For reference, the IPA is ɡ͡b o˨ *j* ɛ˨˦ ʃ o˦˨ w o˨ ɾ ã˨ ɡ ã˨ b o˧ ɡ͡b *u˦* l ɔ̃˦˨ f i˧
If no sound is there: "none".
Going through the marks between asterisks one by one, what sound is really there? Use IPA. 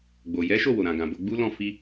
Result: j, u˦

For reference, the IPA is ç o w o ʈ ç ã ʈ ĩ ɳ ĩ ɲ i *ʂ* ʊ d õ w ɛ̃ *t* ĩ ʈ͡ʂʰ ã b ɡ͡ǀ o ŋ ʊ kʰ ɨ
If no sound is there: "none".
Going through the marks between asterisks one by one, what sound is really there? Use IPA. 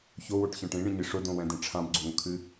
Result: ʂ, d

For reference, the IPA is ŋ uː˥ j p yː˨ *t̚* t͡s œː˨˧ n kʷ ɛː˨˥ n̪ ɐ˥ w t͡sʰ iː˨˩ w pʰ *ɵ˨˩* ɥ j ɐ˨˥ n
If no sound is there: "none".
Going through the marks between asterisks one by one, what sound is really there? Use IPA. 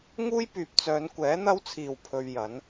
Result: p̚, ɵ˧

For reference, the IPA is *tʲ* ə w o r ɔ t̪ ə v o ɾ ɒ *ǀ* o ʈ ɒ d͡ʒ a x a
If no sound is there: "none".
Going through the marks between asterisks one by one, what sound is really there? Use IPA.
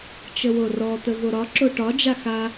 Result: t͡ʃ, ǁ

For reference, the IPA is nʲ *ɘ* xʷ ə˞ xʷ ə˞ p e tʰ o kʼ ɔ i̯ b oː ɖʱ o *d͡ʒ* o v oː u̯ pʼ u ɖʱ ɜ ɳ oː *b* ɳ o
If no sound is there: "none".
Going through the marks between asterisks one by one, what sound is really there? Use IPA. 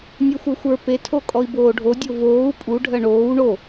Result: ɛ, dʲ, w

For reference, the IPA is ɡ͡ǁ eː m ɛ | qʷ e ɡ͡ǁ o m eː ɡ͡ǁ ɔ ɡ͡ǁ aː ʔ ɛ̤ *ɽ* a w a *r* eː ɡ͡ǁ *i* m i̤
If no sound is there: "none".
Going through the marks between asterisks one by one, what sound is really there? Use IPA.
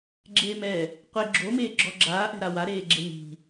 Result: ɾ, ɾ, e

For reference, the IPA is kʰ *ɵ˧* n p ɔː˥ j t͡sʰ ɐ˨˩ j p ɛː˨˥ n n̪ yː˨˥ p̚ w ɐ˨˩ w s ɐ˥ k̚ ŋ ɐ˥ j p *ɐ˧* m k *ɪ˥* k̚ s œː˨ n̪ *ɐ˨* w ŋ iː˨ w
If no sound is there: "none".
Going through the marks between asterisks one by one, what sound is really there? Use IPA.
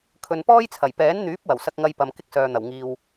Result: ɵ˨, ɐ˧, ɪ˥, ɐ˨˩

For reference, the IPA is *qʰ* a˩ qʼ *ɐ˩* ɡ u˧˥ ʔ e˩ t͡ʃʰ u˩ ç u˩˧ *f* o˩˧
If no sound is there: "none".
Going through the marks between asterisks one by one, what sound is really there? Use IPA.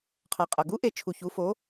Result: qʰ, ɐ˩, f

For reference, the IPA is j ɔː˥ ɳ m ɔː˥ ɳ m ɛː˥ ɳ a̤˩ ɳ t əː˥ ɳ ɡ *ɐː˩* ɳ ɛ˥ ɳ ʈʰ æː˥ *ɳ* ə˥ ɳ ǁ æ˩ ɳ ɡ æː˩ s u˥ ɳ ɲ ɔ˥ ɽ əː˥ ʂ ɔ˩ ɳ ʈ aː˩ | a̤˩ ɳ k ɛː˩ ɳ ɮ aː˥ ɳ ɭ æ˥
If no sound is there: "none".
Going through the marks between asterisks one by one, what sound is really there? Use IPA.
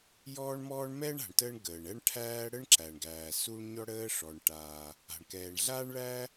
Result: əː˩, ɽ

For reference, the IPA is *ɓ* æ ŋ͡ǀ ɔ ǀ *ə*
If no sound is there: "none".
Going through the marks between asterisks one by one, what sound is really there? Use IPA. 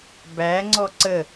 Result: b, ə

